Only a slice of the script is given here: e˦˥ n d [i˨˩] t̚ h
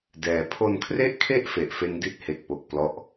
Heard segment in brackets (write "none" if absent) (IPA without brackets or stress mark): i˦˥